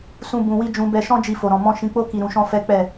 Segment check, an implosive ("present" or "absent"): absent